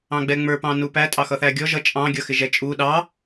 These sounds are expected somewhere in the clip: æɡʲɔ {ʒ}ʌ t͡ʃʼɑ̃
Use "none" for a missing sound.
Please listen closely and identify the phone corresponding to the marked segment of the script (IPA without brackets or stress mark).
ʒ